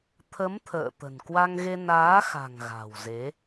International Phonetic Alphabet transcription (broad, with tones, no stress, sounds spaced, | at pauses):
t̪ʰ ə˨˦ m t̪ʰ ə̰ː˧˨ t̪ ə̤˨˩ n k w a˧ ŋ ɣ e˧ n aː˨˦ x a̤˨˩ ŋ ɣ a̤˨˩ w z e˨˦